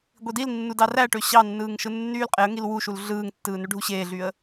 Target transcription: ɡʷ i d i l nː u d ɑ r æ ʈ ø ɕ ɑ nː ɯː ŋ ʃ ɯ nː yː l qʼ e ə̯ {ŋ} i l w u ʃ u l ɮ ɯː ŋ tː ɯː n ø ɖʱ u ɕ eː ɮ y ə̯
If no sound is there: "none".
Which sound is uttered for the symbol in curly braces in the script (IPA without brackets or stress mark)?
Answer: ŋ